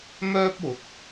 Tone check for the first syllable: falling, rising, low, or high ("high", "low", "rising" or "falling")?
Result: high